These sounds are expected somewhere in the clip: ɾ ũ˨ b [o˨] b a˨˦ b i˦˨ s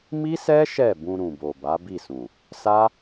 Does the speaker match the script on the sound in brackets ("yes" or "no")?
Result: yes